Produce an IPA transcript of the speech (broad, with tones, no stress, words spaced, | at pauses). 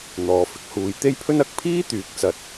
n̪ɔː˨fɪ˨k̚huː˨˧j t̪e˥jpʰɵ˥n ɐ˨k̚pʰiː˥ t̪yː˨˥k̚ t͡sɐ˨t̚